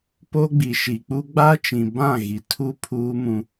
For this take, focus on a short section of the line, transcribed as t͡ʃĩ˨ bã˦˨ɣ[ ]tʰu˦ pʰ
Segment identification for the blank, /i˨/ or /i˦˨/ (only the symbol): i˨